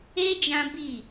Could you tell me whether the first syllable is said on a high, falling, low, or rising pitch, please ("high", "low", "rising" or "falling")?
high